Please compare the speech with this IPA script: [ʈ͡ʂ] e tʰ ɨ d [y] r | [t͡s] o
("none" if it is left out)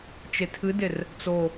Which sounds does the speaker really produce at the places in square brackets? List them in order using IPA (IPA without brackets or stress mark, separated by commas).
t͡ʃ, e, t͡s